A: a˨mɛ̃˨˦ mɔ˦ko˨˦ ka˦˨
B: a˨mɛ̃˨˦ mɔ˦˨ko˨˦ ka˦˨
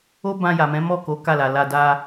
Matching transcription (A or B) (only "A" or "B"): B